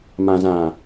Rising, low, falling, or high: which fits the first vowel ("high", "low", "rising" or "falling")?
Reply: low